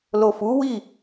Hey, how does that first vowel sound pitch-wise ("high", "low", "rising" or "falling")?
low